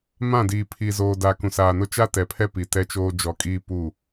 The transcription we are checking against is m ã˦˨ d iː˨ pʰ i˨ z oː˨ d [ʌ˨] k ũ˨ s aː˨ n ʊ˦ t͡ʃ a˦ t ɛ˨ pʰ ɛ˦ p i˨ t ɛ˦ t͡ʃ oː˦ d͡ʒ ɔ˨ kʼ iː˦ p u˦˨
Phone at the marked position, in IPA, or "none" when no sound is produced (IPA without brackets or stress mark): a˨